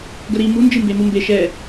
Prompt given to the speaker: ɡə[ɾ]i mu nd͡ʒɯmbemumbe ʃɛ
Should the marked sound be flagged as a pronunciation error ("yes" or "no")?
no